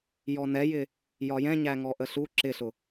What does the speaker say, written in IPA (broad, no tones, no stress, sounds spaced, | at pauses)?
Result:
j ɔ n ɛ j ɪ | j ɒ j ɛ̃ ɲ æ ŋ ɔ ʔ ə ɬ u ǁ ɪ ɬ ʊ